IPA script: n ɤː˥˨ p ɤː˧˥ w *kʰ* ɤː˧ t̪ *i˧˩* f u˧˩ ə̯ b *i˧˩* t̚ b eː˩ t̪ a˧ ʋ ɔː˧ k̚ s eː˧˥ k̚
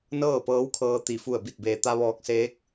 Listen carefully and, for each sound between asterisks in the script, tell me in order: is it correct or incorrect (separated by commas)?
correct, correct, correct